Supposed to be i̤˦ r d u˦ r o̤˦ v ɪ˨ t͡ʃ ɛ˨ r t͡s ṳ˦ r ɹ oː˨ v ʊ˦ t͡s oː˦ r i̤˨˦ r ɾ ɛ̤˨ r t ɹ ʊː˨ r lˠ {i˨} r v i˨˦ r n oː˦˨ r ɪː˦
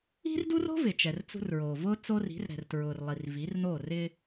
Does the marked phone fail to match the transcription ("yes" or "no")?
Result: no